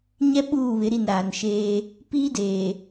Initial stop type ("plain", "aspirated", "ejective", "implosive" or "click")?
implosive